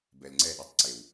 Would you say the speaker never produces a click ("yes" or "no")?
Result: no